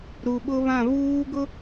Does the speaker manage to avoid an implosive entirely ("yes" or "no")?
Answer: no